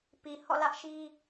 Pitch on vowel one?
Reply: low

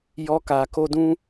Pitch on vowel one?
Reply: high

